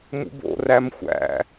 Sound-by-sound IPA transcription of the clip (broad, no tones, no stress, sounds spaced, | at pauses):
m ṵ b o̰ r æ m xʷ æ̰